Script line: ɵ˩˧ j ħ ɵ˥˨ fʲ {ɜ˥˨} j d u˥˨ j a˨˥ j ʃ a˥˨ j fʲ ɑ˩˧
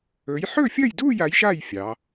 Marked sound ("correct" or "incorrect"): correct